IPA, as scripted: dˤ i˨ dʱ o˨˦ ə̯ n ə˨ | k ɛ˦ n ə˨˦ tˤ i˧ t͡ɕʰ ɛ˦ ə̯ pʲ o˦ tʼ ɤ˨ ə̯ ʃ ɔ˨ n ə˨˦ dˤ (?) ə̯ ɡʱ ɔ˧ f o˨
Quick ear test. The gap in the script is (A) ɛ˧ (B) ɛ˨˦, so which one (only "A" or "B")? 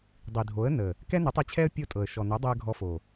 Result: A